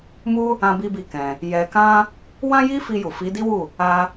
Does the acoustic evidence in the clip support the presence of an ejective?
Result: no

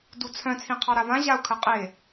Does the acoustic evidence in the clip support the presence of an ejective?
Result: yes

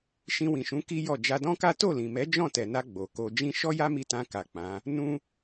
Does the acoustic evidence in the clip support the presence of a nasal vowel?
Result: yes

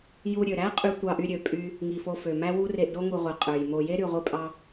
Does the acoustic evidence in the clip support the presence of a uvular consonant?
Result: yes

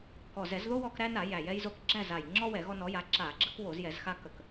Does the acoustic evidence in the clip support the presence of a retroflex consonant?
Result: no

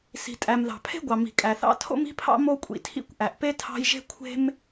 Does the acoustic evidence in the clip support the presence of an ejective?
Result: yes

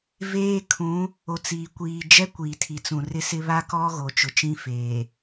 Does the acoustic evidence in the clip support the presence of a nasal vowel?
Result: yes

